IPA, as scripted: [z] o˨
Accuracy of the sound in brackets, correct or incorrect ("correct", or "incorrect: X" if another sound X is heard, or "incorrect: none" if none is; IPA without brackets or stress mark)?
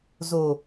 correct